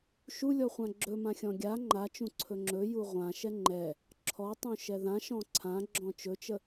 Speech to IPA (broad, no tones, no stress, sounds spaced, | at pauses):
ʃ u lʲ ɔ χʷ ã ɡ͡ǁ ɵ m ã xʲ ɔ̃ ɡʲ a ŋ͡ǃ a t͡ʃ ũ ǀʰ ɵ ŋ͡ǁ ɵ j u ʁʷ ã ʃ ɛ ŋ͡ǃ ɛ | ǁʰ ɔ tˤ ũ ʃ ɛ ð ã ʃ ɔ̃ ǀʰ ã ɡ͡ǁ ɔ̃ t͡ʃ ɵ t͡ʃ ə